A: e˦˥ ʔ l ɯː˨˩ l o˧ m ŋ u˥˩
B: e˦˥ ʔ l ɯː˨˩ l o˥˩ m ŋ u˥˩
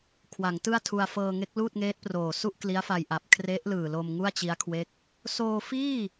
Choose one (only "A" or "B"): A